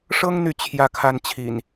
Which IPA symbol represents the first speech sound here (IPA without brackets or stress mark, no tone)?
ʂ